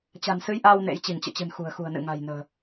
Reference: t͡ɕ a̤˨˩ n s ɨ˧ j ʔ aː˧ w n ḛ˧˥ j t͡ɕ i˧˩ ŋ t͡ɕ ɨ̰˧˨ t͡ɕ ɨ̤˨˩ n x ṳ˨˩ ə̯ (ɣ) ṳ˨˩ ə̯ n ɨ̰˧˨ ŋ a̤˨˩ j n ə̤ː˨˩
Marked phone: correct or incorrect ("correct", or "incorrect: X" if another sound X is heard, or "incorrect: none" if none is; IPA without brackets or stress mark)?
incorrect: x